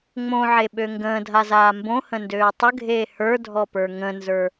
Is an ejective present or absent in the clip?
absent